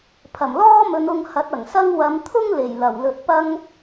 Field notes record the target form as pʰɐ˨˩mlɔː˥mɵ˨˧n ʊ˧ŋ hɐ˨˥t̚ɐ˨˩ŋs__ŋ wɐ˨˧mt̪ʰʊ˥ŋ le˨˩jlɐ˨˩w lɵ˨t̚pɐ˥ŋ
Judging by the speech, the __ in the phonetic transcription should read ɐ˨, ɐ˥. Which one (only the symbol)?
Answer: ɐ˥